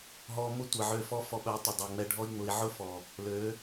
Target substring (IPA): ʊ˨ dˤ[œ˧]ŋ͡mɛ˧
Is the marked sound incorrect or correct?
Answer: incorrect